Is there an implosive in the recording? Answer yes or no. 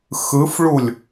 no